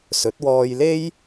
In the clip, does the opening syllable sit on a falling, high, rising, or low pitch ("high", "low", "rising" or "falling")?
rising